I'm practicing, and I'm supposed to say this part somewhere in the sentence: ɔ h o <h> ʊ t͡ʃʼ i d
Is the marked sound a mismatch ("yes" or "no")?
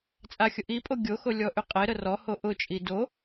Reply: yes